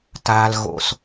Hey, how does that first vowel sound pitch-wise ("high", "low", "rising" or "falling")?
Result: low